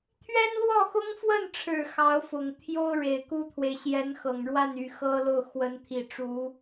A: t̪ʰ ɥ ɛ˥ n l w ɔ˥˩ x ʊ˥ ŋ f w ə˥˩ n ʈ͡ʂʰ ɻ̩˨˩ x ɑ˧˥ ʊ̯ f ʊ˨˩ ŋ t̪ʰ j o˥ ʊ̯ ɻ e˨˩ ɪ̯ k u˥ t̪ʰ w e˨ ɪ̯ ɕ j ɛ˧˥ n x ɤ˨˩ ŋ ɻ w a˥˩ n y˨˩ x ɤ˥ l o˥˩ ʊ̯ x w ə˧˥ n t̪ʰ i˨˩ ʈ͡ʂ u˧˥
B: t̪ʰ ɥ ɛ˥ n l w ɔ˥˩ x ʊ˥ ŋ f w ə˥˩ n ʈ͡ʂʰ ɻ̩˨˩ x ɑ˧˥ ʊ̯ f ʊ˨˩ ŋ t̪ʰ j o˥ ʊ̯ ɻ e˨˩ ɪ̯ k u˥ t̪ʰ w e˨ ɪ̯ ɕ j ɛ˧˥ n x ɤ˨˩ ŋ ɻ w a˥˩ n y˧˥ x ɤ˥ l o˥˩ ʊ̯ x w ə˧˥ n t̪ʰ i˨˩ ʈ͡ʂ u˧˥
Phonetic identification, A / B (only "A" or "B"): A